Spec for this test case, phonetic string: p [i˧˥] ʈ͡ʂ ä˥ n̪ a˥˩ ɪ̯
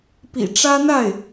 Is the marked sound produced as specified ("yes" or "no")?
no